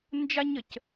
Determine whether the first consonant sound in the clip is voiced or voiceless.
voiced